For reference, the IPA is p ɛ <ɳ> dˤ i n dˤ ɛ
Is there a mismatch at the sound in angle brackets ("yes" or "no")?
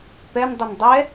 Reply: yes